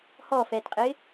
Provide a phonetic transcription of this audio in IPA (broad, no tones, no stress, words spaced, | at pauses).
hɔfɛːtqʼɪː